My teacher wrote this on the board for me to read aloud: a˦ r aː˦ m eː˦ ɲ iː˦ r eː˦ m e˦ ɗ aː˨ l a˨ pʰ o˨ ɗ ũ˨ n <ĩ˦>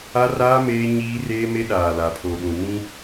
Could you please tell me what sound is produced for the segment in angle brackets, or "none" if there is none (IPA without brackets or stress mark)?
ĩ˦